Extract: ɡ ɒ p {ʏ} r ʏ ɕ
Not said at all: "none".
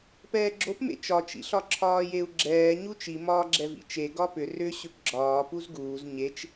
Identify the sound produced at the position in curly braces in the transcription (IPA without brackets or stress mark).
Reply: ʏ